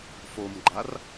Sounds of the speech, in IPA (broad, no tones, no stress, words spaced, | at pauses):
fomɡ͡ǃar